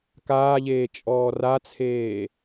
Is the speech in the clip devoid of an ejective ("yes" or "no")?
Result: no